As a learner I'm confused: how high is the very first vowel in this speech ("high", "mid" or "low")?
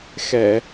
mid